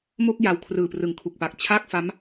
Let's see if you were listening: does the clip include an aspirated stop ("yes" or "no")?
yes